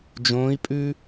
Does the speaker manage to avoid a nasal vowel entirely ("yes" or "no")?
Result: no